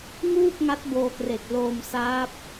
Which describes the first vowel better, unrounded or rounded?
rounded